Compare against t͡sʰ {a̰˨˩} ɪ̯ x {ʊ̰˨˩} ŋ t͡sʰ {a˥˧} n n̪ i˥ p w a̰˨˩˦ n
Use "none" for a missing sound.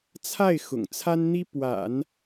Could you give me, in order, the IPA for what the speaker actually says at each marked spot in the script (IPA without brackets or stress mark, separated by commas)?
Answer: a˥˩, ʊ̰˨˩, a˥